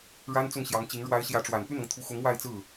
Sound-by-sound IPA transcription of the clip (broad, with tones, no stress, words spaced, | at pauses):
ɻa˥nt͡sʊ˥˩ŋɕjɑ˧˥ŋt͡ɕi˧˥ŋ ɻwa˧˥ɪ̯ ɕjä˧˥ʈ͡ʂwa˨˩n py˥˩nɤ˩ŋt̪ʰu˧˥xʊ˧˥ŋ wa˥˧ɪ̯t͡sɹ̩˥˩